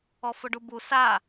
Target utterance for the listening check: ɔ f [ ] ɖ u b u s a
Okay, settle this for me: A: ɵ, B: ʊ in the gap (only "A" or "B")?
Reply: B